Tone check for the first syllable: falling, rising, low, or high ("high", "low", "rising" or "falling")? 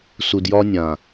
low